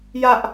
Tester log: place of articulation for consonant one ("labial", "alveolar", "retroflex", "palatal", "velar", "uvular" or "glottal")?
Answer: palatal